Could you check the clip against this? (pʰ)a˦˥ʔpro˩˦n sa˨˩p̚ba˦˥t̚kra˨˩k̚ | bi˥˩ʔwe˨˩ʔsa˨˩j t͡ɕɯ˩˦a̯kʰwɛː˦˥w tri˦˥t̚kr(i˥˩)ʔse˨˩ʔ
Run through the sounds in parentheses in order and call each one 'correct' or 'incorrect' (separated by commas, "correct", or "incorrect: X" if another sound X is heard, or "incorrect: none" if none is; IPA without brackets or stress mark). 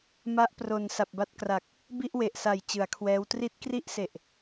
incorrect: m, correct